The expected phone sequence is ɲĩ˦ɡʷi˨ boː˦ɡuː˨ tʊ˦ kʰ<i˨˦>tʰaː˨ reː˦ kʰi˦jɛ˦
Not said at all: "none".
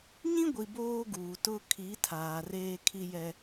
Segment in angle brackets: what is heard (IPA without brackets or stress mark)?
i˨˦